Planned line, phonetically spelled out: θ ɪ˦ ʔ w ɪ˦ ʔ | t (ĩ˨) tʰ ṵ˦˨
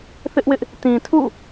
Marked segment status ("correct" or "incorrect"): correct